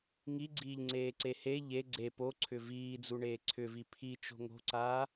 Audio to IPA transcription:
ŋ i ɡ͡ǀ iː ʎ ŋ͡ǀ eː ǀ e h e ʎ e ɡ͡ǀ e p o ǀʰ ʏ v iː d͡z u ɳ eː ǀʰ ʏ v i pʰ i t͡ʃ o̤ ŋ o̤ ǀ aː

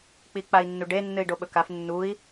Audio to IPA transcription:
k͡p i k͡p a i̯ nː u ɖ e nː ɨ i̯ ɖ o ɓ ɵ k a f nː u i̯

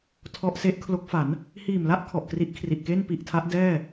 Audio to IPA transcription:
tʰ ɔ˦˥ ʔ s e˦˥ ʔ kʰ l o˦˥ k̚ f a˩˦ n | h iː˨˩ m l a˥˩ ʔ kʰ ɔ˨˩ ʔ k r i˦˥ ʔ kʰ r i˨˩ ʔ k e˥˩ n p i˨˩ ʔ tʰ a˦˥ ʔ d ɛː˥˩

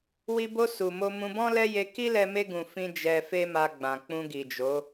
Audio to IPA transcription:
w i˧ b o˧ s u˨ m o˧ m ũ˧ b ɔ̃˦ l ɛ˦ j e˧ k i˦ l ɛ˧ m e˧ ɡ ũ˨ f ĩ˧ d͡ʒ ɛ˧ f e˦ m a˧ ɡ͡b ã˨ k͡p ũ˧ ɡ i˨ d͡ʒ o˨˦

